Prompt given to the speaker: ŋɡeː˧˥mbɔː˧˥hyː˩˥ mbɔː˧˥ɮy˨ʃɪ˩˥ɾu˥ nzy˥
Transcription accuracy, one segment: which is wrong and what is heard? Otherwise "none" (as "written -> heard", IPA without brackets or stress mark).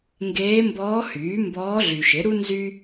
none